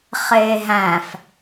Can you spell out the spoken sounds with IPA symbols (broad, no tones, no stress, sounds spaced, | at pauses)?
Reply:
χ eː ɦ æ̃ f